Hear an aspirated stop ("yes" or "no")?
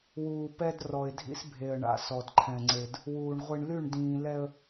yes